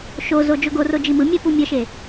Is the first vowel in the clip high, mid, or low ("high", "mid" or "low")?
mid